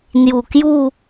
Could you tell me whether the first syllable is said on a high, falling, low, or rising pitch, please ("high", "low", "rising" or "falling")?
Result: low